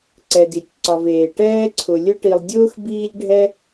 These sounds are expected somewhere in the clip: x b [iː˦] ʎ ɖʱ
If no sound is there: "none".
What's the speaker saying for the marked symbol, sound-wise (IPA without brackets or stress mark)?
iː˦